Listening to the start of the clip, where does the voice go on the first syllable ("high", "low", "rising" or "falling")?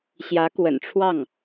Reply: rising